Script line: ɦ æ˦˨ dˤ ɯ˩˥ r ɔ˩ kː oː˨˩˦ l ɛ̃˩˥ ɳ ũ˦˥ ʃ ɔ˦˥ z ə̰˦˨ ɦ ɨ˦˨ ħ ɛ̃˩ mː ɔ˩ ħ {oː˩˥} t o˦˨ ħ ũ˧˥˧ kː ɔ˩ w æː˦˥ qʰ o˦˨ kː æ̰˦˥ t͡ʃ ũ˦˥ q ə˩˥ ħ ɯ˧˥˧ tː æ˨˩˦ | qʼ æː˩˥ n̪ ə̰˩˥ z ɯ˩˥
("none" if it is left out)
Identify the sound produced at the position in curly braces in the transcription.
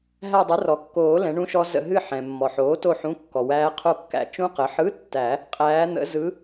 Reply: oː˩˥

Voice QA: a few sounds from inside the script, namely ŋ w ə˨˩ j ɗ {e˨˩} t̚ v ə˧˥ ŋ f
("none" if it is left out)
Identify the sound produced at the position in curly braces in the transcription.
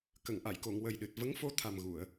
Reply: ɨ˨˩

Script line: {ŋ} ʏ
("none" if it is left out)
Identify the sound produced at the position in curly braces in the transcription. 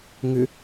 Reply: ŋ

